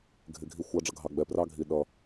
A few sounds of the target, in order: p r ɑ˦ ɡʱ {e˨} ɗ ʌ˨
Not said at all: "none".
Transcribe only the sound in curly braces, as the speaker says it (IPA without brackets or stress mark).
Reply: i˨